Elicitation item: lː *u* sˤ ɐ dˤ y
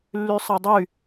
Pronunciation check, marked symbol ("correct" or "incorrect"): incorrect